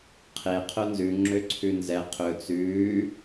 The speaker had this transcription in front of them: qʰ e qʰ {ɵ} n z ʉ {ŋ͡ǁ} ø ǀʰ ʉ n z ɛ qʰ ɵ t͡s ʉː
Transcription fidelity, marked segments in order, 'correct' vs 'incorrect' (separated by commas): incorrect, correct